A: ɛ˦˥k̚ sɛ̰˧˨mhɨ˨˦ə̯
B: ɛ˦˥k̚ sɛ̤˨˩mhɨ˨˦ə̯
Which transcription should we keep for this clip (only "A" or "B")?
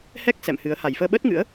A